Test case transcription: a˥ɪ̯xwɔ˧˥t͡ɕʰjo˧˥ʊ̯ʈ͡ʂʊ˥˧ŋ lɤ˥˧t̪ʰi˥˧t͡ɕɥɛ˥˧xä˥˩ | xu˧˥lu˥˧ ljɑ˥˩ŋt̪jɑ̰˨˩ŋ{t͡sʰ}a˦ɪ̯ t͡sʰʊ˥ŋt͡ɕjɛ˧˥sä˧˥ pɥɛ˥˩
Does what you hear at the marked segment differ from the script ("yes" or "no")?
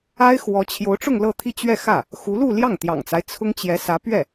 yes